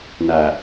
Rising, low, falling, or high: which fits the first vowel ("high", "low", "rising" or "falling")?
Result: low